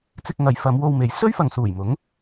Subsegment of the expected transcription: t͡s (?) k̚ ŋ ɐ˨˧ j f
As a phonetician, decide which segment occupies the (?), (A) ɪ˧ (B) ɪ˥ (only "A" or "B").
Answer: A